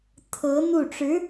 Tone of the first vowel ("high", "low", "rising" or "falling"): rising